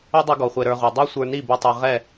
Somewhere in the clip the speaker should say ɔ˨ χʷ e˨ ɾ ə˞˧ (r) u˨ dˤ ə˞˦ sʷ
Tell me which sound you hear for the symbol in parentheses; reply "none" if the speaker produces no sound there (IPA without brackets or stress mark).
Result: ʁ